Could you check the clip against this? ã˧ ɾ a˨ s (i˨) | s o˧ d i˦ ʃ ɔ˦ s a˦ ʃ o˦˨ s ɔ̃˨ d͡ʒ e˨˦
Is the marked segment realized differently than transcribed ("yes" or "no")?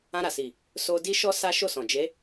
no